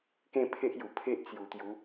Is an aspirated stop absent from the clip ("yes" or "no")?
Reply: no